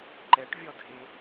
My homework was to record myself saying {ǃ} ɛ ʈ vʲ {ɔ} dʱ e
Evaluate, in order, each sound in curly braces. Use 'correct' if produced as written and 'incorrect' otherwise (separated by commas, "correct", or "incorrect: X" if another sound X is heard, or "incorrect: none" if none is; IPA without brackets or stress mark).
correct, correct